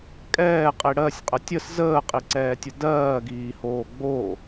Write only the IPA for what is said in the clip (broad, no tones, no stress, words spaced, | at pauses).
kʼɛːqʼi ɽɜsʲqʼə tʲəs zəːqʼiǀɛːtʲə dɜːɡiːhoː ɡ͡bo